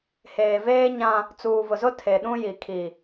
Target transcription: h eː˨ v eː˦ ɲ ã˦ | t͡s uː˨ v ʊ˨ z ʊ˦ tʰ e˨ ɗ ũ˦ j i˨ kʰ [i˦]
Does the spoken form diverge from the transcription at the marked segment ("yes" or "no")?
yes